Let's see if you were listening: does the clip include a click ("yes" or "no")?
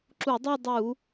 yes